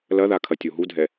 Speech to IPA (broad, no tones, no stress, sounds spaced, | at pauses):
l ɐ ð a kʰ ɐ tʲ o ɦ u dʱ ɛ